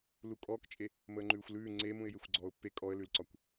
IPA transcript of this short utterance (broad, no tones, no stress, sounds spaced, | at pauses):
l u kʼ ɔː k t͡ʃʼ e | m əː ŋ͡ǃ ʉː xʷ l ʉː ŋ͡ǀ e m ũ ɪ̯ j e xʷ ɡ͡ǀ ɔː ʊ̯ pː e kʼ ɔ ə̯ l ʉ l ǀ ɒ kʷ